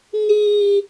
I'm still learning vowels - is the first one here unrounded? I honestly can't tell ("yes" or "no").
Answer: yes